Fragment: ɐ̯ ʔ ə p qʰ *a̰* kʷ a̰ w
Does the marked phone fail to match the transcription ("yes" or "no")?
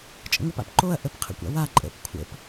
yes